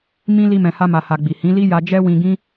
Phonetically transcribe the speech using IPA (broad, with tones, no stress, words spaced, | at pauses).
mĩ˦ li˦mɛ̃˧ha˦ ma˧ha˧ɡ͡bi˨ hĩ˨˦li˦ ja˧d͡ʒɛ˦wĩ˧ɡĩ˦